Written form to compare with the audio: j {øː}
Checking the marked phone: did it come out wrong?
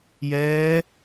yes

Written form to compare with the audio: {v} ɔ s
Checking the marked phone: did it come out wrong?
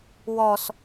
yes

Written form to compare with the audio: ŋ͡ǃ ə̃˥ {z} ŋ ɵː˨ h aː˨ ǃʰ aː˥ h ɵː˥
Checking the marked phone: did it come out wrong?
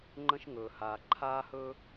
yes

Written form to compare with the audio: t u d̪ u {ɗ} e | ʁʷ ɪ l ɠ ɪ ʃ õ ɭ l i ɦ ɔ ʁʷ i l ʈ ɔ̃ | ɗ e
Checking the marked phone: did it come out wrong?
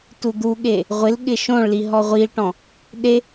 yes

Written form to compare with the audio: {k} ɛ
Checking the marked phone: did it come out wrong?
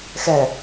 yes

